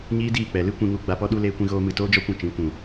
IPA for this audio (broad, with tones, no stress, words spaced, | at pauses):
ɲiː˦diː˦˨k͡pɛ˨ lɨ˦kʷĩ˧ŋu˧ ɡ͡ba˧pɔ˦ɗu˦ leː˦kʷĩ˦ ɣoː˦mɨ˧ toː˦d͡ʒɔ˦kʷũ˧ t͡ʃĩ˨˦ kʷũ˨